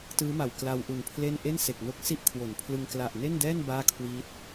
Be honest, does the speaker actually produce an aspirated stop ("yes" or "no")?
yes